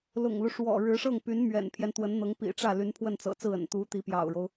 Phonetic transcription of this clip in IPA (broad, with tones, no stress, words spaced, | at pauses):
lʊ̰˨˩ŋlu˦ ʂwɔ̰˨˩ ɻɻ̩˧˥ʂɤ˥˩ŋpy˧˥n mɥɛ̰˨˩npʰjɛ˦n t̪wə˧˥nn̪ɤ˧˥ŋ pḭ˨˩ʈ͡ʂä˥˩ly˧˥n pʰwə˥˩nt͡sɤ̰˨˩t͡sɹ̩˥˩ə̰˨˩n t̪u˧˥ t̪i˧˥pjɑ̰˨˩ʊ̯ɻo˦ʊ̯